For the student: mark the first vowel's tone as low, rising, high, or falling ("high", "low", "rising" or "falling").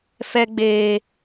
high